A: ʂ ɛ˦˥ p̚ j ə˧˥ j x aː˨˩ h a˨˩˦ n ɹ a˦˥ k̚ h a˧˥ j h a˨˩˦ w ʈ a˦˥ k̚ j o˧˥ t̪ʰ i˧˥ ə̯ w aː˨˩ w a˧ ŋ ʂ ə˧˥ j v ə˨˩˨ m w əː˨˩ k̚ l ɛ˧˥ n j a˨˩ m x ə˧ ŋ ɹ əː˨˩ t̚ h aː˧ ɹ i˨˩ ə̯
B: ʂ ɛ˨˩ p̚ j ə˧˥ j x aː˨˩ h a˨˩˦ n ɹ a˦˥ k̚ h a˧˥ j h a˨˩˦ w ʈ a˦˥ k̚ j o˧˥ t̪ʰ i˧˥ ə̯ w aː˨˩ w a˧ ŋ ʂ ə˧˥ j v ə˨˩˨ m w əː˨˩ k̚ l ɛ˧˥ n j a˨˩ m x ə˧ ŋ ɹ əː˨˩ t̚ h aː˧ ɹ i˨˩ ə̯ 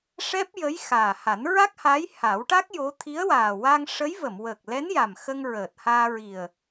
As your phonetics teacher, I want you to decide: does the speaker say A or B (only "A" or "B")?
A